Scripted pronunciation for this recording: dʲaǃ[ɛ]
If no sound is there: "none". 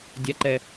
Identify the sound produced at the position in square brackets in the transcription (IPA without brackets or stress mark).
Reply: ɛ